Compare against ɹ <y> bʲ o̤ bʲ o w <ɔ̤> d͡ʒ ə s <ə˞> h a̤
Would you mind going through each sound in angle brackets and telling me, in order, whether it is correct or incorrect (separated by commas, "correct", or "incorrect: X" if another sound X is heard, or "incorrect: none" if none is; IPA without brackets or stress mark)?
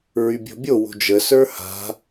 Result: correct, incorrect: o̤, correct